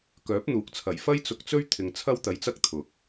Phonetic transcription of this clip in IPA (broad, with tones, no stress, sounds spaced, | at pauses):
k œː˨˥ p̚ n̪ uː˨˥ k̚ t͡sʰ ɐ˨˩ j f ɐ˥ j t͡s ʊ˧ k̚ t͡s ɵ˥ ɥ t̪ʰ ɪ˧ ŋ t͡sʰ ɐ˥ w t̪ ɐ˧ j t͡s ɐ˥ k̚ t̪ʰ ʊ˨˥ k̚